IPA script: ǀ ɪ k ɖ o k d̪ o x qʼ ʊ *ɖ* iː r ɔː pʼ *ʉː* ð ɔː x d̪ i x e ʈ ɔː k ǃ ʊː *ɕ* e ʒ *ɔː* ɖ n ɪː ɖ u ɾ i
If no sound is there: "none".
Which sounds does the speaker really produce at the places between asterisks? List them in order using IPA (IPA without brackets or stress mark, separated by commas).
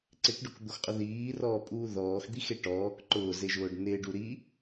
ð, uː, z, ʊː